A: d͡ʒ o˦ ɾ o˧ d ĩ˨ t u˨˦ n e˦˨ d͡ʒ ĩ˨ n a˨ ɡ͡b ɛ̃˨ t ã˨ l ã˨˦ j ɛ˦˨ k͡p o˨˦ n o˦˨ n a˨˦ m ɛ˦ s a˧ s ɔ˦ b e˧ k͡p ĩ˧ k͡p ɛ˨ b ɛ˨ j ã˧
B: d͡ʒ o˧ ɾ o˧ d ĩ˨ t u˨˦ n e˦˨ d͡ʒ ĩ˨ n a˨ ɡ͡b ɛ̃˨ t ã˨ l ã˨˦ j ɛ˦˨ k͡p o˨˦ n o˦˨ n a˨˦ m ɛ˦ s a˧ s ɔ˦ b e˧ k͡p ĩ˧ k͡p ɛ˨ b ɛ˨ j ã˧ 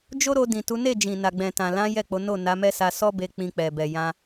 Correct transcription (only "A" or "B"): A